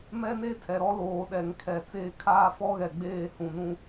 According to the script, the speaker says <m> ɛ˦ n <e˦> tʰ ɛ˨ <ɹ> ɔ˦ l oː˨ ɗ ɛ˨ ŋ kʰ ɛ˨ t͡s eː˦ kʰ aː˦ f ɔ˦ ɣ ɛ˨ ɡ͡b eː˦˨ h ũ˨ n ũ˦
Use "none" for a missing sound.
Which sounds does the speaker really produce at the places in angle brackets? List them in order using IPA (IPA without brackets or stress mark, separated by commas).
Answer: m, e˦, ɾ